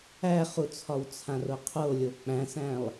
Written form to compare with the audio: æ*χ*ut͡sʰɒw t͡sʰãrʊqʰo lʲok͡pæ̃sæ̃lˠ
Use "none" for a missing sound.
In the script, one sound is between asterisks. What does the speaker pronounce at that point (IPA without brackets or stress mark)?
χ